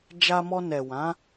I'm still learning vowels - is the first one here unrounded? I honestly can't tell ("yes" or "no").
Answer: yes